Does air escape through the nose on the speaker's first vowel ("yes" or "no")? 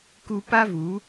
no